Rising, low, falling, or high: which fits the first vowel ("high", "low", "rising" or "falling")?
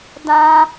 high